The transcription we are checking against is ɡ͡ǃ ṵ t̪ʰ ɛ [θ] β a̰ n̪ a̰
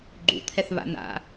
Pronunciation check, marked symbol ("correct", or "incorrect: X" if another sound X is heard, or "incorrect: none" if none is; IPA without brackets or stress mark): correct